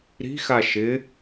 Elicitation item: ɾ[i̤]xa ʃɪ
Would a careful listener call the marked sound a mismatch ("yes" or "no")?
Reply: no